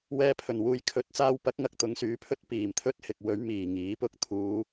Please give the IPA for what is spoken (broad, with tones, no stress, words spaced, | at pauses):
wɛː˧pʰɵ˨˩nwuː˧j kʰɵ˨˥t̚t͡saː˧wpɐ˨˥k̚ŋɐ˨k̚ t̪ʊ˨˧ŋsyː˨˥pʰɵ˥t̚ piː˨˩mt̪ʰɵ˥t̚hɪ˨k̚wɵ˨˥ɥ miː˨˩ŋiː˨˥pʊ˥k̚ t̪ʰuː˨˧